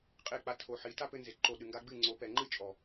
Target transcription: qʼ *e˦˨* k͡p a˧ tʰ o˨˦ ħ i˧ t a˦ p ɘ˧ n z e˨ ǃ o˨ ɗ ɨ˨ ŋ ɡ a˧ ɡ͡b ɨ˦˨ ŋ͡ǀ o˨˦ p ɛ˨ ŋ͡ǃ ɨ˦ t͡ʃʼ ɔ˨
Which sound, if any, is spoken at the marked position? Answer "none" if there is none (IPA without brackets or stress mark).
e˦˨